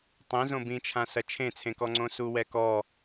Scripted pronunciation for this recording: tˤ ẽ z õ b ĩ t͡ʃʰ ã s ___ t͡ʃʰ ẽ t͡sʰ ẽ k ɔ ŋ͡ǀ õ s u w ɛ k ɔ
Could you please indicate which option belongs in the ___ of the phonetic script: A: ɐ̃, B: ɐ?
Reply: B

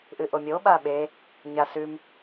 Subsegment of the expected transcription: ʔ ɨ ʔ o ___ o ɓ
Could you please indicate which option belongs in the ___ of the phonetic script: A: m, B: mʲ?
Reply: B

